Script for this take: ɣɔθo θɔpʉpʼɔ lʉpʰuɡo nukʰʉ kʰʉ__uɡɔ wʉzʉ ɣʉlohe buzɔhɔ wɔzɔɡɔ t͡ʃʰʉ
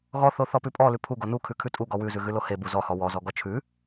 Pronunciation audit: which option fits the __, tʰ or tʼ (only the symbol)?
tʼ